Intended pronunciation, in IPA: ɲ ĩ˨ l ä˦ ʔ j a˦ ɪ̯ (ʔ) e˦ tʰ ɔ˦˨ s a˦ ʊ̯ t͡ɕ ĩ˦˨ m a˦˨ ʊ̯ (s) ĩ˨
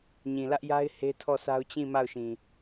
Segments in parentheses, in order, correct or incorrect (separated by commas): incorrect, incorrect